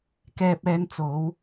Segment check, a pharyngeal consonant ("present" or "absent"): absent